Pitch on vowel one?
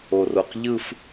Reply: low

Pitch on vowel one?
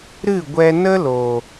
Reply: falling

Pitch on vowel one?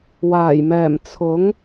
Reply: low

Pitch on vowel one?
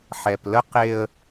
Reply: low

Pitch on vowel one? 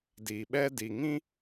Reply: low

